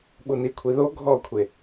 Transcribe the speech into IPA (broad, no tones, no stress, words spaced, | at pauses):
ɓunikʷʰi ðo ɡʱɔkʷʰe